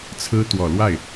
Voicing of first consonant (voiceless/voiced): voiceless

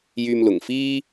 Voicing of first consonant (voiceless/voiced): voiced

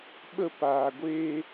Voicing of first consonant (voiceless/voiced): voiced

